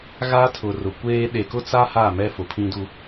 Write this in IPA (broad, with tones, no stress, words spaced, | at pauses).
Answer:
ɣa˦tʰʊ˨rʊ˨kʷeː˦ ɗe˨kʊ˦t͡sa˦ ha˦˨mɛ˦ fʊ˨pʰĩ˦du˦